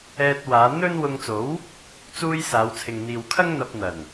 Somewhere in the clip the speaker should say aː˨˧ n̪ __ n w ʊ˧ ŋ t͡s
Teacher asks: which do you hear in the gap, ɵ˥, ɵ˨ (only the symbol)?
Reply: ɵ˥